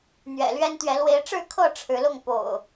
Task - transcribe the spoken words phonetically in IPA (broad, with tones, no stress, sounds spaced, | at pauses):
n̪ ɥ ɛ̰˨˩ l ɥ ɛ˦ n t̪ ɥ ɛ˨˦ l w e˨˦ ɪ̯ ʈ͡ʂ ɻ̩˥˨ kʰ ɤ˥˨ ʈ͡ʂʰ ɻ̩˨˦ l ʊ˥˨ ŋ p o̰˨˩ ʊ̯